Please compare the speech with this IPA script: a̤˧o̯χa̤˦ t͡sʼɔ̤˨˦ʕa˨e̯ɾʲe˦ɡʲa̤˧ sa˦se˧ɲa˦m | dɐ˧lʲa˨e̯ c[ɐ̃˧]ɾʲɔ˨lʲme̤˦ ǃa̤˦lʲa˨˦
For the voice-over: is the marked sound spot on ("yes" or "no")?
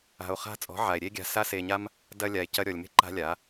no